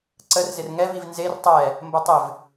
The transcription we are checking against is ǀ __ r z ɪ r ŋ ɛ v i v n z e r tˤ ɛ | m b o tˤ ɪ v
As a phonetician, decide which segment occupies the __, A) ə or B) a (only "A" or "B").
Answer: A